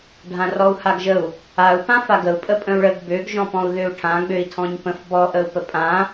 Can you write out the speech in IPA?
ɖʱãrɔu̯haɡʒəu̯ | au̯ pãfaɡəu̯ pʼəpʼə̃u̯ɭəɡ bøɡ ʒɔ̃pɔ̃u̯ðøu̯ʈʰã ɡ͡bøi̯tʰɔ̃ɲpə̃f bɔ ʔəu̯pəpʼã

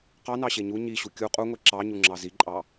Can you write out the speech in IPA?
qɑnɑɕe ɲu ɲiɕu kʲu qʼuŋʷe ǁɑɲuŋ͡ǁɑ ziǃʼɑ

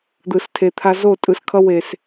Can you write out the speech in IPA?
d̪ɯ˨stʰe˨t̪ʰa˦ zo˦˨tʼɯ˨skʰʌ˦ we˨s

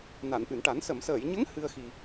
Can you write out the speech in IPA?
na˨˩˨nʔɨ˨˩˨nʈa˨˩˦n sə˨˩˨msəː˨˩˨jɲə˧˥ŋ hɨ˧ə̯xi˨˩

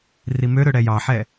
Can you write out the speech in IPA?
rimøɾø ɽɛjɑħɛ

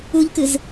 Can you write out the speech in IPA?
uʎkɨz

